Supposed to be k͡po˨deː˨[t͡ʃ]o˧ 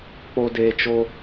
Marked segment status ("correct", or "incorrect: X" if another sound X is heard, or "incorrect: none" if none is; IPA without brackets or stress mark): correct